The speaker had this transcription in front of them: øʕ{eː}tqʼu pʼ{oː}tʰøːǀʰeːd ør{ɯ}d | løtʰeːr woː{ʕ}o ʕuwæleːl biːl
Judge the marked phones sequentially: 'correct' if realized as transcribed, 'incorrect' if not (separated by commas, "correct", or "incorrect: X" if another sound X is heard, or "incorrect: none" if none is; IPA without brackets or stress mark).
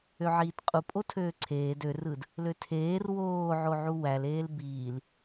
incorrect: iː, incorrect: o, correct, correct